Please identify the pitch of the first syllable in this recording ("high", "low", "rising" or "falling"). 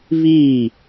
falling